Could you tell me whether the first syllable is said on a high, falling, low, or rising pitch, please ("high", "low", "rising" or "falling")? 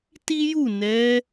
high